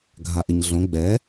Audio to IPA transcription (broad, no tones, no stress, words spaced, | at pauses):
ɡʱaʔɪɲɮõ ɡ͡bɛ